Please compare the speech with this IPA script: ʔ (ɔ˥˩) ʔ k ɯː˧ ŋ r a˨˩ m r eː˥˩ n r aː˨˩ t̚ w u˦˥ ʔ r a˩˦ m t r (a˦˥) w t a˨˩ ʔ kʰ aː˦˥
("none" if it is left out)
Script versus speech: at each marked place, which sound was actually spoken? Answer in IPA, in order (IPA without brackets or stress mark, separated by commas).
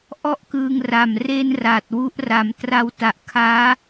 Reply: ɔ˥˩, a˦˥